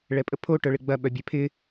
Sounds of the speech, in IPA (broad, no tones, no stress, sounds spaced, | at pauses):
ɭ ɛ pʼ ə pʰ o ʈ œ ɭ ɪ ɡ͡b ɐ ɓ œ bʲ ɛ pʰ ɪ